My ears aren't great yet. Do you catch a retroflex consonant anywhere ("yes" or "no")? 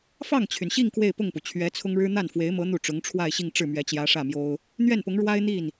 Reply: yes